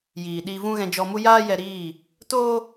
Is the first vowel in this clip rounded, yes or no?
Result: no